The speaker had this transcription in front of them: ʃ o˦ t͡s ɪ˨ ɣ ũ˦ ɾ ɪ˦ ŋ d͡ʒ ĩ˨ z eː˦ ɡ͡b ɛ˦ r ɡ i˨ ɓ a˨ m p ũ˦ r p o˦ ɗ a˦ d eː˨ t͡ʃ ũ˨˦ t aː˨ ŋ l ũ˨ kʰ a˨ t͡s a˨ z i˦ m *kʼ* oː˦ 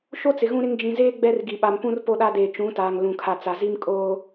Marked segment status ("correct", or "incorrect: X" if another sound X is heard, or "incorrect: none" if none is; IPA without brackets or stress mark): correct